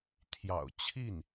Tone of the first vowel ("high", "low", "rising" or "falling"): low